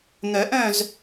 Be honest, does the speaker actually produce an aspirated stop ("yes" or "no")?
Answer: no